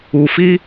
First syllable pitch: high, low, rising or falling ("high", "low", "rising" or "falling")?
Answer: low